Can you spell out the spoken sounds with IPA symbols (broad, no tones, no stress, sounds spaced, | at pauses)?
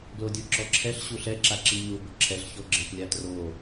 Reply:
ɡ l o dʲ o ǁ ɔ ǁʰ ɛ ɬ ɕ u ɬ ɛ ǁ a ǁ i ɲ u b ʊ ǁʰ ɛ ɬ ç o ɡ͡ǁ ɪ p lʲ a t r o